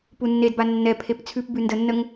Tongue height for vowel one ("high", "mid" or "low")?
high